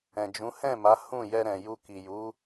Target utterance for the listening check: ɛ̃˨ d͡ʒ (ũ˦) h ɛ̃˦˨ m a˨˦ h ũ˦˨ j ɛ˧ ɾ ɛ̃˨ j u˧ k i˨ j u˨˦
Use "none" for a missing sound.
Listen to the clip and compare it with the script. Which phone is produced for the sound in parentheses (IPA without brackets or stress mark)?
ũ˨˦